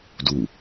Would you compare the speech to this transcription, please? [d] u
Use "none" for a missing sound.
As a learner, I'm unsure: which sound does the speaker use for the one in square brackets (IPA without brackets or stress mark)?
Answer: d